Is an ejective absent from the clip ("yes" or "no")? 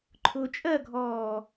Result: no